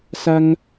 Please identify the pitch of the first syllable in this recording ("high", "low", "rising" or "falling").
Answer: high